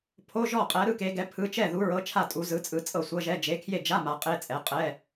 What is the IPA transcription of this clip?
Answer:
pʰo˧˥˧ʒɔ˥˩qʼɛ˨˥ ɾɯ˧˥˧ke˨˥ɡɛ˨˥ pʰɯ˧˥˧ t͡ʃɛ˥˩ðu˨˥ɹɤ˨˥t͡ʃʰa˥˩ tʼu˨˥zɯ˨˥t͡sʼɯ˨˥ t͡sʼɤ˥˩sʷɤ˧˥˧ʒɛ˧˥˧ d͡ʒe˨˥kʰje˥˩d͡ʒa˧˥˧ ma˨˥qʼe˧˥˧t͡sʼɛ˨˥ qʼɛ˧˥˧

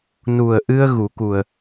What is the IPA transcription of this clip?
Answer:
nu˨˩ə̯ʔɨ˧ə̯ ɣu˨˩˦ku˨˩ə̯

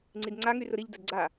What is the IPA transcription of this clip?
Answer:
ŋ͡ǀidŋ͡ǀaŋyrʊ ɾiʎdɐd ɡ͡ǀa

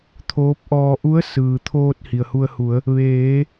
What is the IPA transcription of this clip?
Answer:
t̪ʰoː˧˥p̚ʔɔː˧ ʔu˧˥ə̯ sɯː˩t̪ʰoː˧t̚ hi˩ə̯hu˧ə̯ hu˩˧ə̯ | ʋeː˩˧

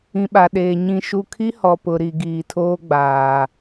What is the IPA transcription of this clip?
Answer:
ĩ˨ɓa˨ ɗeː˨ ɲĩ˨ʃu˨kʰi˦ hɔ˨pʊ˨ɾi˨ ɡiː˨tʰoː˦ɡ͡baː˨

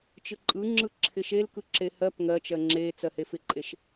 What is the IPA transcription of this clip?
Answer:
t͡ʃɯǃʼɯŋ͡ǁɯ ǁʰɪʃel kɯǁehɜp ŋɜt͡ʃɜ ŋ͡ǁet͡sɜ hefɪǃʼeʃ

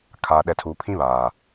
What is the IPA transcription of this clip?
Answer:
kʰaː˨ɗɛ˨tʰuː˨ pʰĩ˦βaː˨

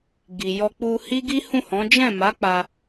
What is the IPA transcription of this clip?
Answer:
ɡi˨ jɔ˧k͡pu˧hi˦ ɡi˦hũ˦˨hɔ̃˨˦ d͡ʒɛ̃˦˨ma˨˦ k͡pa˧

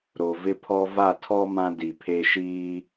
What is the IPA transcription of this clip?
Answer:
ɾo˨vɪ˦pʰɔ˦ va˦˨tʰɔ˦ mã˦di˨pʰe˦ ʃiː˦

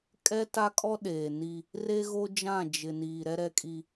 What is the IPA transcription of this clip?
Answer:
kʼɛ˦ta˦kʼɔ˦ ɗeː˨ni˦ | re˦ ɣo˦d͡ʒã˦˨ d͡ʒɪ˨niː˨ ɾɛ˦ɾɛ˦kʼi˦

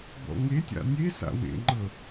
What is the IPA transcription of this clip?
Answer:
bɔ̰ŋetʲa̰ nʲesa̰ wḛŋ͡ǃɤ

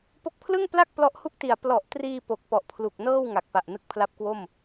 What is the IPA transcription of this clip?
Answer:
po˦˥k̚pʰlɯ˥˩ŋpla˥˩k̚ plɔ˦˥ʔhu˥˩k̚ti˨˩a̯ plɔ˨˩ʔtriː˧ po˨˩k̚pɔ˨˩ʔpʰlu˨˩k̚nɤː˥˩w ŋa˨˩k̚pa˨˩ʔnɯ˦˥k̚ pʰla˦˥p̚kwo˥˩m

